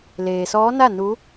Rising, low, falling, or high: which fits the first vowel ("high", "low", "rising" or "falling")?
low